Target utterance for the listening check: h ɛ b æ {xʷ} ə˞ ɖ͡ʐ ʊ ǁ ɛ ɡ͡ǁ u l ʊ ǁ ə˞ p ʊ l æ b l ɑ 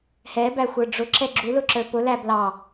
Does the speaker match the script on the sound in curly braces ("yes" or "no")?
yes